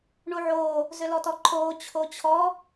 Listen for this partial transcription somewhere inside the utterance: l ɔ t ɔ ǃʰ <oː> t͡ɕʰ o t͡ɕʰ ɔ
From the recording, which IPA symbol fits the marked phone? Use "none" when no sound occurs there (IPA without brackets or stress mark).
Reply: oː